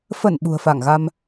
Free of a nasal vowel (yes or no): yes